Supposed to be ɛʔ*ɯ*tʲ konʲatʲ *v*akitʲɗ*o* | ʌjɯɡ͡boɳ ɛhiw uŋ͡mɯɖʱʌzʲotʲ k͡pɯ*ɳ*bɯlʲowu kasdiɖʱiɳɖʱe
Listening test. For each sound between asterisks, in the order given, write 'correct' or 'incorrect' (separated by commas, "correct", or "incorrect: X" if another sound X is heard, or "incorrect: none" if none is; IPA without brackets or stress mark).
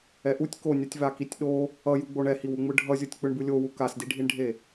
incorrect: u, correct, correct, correct